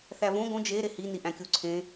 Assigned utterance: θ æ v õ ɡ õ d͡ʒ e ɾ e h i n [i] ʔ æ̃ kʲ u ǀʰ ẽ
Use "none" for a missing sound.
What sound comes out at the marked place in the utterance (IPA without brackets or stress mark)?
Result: i